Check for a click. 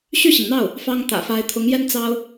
absent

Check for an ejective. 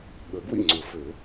absent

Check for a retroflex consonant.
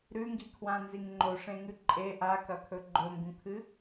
present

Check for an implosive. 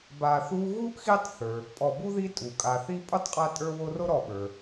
present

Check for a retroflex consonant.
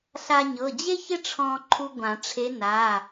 present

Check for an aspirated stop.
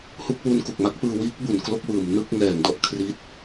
present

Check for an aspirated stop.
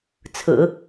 present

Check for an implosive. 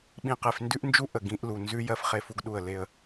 present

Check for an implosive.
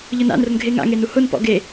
absent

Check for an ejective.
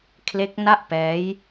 absent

